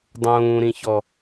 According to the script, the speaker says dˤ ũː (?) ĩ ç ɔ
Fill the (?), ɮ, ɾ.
ɾ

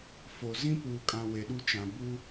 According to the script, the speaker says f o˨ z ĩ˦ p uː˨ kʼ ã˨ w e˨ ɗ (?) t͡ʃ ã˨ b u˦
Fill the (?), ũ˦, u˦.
u˦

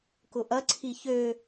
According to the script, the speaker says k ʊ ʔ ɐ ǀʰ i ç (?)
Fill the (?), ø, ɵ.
ø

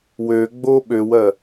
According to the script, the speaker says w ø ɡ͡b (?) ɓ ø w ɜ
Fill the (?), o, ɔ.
o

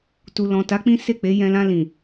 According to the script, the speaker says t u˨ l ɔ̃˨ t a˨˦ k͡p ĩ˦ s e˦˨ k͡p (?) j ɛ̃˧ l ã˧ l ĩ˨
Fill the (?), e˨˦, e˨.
e˨˦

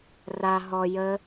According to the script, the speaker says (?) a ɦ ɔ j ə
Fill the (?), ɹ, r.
r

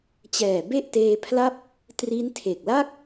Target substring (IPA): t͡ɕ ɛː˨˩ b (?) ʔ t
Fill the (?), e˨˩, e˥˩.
e˥˩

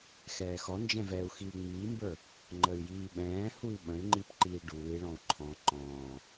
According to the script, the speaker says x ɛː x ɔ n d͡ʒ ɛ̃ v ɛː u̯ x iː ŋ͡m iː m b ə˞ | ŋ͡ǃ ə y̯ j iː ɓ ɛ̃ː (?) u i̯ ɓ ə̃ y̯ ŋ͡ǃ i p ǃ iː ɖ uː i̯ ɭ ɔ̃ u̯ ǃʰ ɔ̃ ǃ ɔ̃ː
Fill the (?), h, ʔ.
h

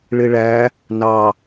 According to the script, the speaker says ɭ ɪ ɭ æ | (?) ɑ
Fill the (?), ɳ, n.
n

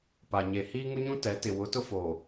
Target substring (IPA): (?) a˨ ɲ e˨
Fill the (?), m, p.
p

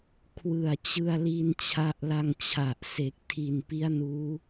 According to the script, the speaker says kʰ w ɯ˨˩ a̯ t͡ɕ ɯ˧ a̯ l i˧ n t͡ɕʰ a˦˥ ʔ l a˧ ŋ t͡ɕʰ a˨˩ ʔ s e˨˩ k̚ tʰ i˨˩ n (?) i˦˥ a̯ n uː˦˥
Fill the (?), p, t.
p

